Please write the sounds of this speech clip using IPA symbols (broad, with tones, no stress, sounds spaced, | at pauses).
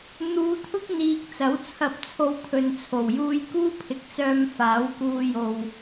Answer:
n̪ uː˨˧ t̪ʰ ʊ˥ k̚ n̪ iː˨ k̚ t͡s ɐ˨˥ w t͡sʰ ɐ˧ p̚ t͡sʰ o˧ w t̪ʰ ɵ˨ n t͡sʰ o˨˩ w j uː˥ j k uː˥ pʰ ɪ˨ k̚ t͡s œː˧ m f aː˨˥ w k uː˧ j o˨ w